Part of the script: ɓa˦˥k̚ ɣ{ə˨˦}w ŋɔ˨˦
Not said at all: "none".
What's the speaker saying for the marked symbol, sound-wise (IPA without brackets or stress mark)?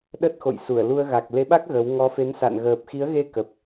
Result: ə˨˦